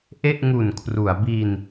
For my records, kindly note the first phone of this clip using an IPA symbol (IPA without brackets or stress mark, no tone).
ʔ